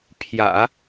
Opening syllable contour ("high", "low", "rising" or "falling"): low